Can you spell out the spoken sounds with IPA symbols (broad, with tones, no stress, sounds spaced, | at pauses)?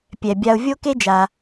pʲ ɛ˩ bʲ a˨ ʊ̯ vʲ o˦ k e˦ d͡ʒ a˩